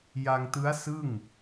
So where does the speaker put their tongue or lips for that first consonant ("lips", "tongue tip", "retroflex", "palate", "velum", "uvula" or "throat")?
palate